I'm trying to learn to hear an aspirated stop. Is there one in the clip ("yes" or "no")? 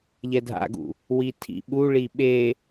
yes